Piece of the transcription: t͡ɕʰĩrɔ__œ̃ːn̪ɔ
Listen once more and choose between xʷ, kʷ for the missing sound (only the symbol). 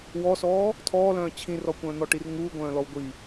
kʷ